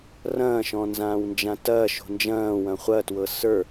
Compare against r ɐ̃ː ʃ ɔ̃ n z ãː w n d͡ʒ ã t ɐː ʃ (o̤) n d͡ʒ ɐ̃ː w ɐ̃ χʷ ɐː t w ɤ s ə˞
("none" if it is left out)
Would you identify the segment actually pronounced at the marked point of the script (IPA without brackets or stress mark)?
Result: o̤